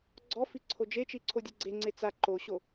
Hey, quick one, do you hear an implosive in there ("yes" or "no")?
no